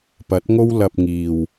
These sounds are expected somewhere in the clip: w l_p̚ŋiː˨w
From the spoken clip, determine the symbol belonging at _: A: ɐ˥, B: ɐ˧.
B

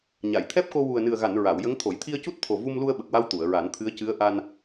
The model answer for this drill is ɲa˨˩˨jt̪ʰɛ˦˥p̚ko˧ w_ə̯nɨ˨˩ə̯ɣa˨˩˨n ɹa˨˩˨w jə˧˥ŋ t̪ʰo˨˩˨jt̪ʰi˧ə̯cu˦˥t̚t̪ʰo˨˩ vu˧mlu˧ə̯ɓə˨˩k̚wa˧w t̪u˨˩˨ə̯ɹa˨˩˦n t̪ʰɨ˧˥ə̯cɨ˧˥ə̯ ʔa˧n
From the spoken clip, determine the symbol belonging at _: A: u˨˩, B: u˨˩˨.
A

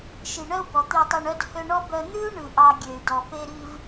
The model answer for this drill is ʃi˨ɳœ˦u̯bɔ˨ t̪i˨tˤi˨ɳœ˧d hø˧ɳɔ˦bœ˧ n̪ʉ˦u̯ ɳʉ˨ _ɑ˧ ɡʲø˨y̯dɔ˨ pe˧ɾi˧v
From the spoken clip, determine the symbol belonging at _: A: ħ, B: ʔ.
B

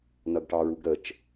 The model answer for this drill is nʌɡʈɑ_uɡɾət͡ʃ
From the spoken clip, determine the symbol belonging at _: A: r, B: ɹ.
B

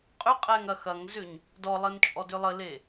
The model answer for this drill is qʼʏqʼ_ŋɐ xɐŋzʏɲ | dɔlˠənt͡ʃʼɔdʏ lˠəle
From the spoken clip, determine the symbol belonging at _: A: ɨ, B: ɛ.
B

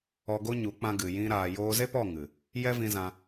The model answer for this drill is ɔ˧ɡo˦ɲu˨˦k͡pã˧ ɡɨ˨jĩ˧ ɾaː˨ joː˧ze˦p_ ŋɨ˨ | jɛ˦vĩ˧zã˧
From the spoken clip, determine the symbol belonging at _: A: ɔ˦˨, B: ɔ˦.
A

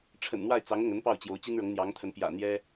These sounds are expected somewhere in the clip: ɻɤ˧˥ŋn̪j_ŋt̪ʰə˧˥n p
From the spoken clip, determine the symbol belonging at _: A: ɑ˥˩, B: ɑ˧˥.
B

